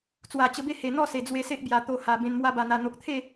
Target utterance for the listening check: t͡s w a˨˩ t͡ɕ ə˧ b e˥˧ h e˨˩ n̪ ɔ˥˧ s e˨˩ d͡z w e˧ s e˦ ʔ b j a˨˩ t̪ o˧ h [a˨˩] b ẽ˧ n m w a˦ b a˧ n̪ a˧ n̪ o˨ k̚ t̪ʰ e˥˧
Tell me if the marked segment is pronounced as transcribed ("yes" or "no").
yes